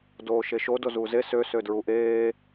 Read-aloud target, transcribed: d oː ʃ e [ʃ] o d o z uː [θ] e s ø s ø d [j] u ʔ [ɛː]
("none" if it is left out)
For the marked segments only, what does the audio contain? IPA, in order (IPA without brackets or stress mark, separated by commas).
ʃ, z, ɹ, eː